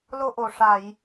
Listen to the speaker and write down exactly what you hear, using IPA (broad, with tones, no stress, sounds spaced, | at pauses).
l o˧ ʔ o˨˩ ʂ a˨˩˨ j